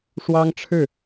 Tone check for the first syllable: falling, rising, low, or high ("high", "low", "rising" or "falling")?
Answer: high